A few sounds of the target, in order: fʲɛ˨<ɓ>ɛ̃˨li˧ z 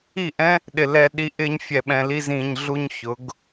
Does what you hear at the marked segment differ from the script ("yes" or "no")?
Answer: no